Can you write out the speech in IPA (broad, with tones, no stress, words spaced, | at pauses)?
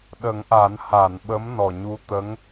ɗə˨˩˦ŋʔa˨˩˦n ha˨˩˨nɓə˧˥m nɔ˨˩ɲu˧ t̪ə˧˥ŋ